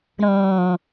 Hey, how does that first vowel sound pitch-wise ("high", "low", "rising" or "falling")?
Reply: low